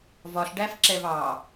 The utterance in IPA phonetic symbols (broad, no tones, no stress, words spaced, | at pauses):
vɒɬɖæfǁɛv ɑ